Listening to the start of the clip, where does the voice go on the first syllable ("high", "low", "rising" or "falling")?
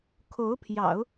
rising